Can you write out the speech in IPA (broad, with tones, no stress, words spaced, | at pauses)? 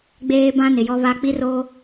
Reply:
ɡ͡beː˦bã˦ nɪ˨jɔ˦βa˦ k͡pi˦ro˦